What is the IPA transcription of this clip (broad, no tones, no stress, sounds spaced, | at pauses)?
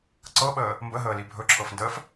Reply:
ǀ ɤ ɓ əː | m b ə ɦ əː l i bʱ ɵ ǁʰ ɤ f n d əː f